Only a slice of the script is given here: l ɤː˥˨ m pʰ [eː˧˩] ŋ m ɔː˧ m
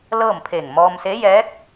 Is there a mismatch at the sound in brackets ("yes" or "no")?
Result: no